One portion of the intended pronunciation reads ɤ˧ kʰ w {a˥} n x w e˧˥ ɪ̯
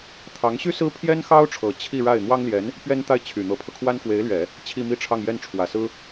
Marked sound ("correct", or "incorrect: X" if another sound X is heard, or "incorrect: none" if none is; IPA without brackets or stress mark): correct